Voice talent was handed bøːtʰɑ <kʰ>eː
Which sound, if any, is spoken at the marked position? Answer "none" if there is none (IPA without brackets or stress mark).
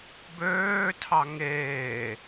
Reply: ŋ